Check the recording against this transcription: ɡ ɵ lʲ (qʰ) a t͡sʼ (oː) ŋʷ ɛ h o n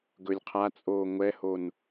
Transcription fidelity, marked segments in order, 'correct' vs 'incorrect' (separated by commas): correct, correct